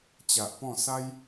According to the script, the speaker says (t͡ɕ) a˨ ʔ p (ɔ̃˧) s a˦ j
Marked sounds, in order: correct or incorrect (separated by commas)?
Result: correct, incorrect